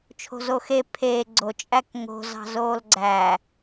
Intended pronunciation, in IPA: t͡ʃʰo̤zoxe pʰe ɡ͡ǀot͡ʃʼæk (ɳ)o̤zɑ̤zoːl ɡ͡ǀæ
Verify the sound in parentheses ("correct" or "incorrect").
incorrect